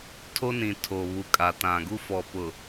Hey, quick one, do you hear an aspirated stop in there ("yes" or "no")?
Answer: yes